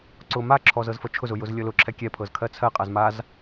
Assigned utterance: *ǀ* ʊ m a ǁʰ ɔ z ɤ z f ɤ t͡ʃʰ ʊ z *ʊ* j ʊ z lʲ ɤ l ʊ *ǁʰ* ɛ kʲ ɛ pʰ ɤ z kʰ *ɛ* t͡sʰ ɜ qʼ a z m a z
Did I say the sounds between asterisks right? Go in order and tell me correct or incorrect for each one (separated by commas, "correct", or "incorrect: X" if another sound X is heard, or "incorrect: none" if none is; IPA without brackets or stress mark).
correct, correct, correct, incorrect: ɜ